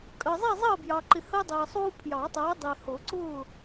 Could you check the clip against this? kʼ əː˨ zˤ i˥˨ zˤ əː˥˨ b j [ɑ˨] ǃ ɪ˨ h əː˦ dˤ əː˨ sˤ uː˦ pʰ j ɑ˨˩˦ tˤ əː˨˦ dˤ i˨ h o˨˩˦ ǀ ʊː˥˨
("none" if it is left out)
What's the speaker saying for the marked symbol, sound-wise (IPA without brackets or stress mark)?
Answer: ɑ˨